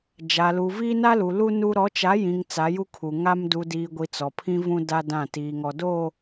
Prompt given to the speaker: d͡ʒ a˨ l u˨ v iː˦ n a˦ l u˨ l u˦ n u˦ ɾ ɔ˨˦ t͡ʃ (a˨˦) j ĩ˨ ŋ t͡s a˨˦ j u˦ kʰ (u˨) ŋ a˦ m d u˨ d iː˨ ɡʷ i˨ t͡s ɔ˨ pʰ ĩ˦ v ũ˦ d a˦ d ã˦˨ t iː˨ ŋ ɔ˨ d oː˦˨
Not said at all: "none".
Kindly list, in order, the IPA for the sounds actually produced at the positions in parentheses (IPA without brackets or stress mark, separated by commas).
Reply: a˨˦, u˨